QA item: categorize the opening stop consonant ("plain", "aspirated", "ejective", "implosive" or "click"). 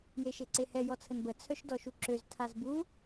click